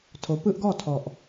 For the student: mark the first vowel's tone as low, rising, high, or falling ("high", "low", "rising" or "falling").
rising